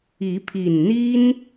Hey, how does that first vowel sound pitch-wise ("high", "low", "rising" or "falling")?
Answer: rising